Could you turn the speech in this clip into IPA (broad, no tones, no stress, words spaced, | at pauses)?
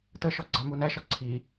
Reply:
təʃɔ ɡ͡ǀɑmunæʃɒ ǀʰi